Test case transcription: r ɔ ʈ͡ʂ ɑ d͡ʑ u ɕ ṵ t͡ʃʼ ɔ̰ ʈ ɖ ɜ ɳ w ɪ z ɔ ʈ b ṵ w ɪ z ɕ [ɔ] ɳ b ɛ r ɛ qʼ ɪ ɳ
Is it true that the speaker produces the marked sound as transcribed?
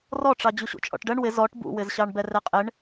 no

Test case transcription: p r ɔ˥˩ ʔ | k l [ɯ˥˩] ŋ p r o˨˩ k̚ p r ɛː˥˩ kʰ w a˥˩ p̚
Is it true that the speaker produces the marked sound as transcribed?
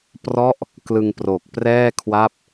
no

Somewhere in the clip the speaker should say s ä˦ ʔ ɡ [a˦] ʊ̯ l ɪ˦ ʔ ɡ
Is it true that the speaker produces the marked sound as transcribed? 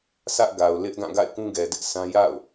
no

